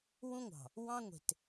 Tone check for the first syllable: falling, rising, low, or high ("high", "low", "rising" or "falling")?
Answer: high